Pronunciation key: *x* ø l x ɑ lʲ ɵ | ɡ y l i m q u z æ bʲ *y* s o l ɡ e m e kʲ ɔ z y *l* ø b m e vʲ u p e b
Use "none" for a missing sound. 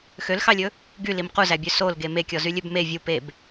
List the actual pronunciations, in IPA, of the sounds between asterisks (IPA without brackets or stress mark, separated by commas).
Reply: x, ø, lʲ